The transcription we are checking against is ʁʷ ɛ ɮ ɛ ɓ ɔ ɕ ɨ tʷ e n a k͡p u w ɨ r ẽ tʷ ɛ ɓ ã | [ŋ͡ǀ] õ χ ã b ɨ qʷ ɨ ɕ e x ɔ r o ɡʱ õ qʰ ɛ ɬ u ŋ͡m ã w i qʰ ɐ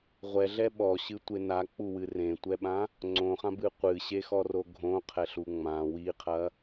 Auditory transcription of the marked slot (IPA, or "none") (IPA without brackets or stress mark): ŋ͡ǀ